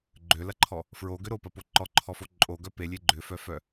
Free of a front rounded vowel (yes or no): no